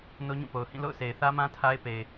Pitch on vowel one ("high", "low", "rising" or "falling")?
high